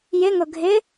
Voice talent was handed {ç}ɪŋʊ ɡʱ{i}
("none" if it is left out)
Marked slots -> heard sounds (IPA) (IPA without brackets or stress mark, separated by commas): j, ɪ